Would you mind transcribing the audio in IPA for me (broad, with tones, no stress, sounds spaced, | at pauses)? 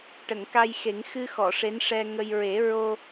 ʈ ə˨˩˨ ŋ k a˧ j x e˨˩˦ ŋ x ɨ˧ x ɔ˨˩˨ ʂ e˧˥ n ʂ ɛ˧ ŋ ə˧ j ɹ e˨˩˦ ɹ o˧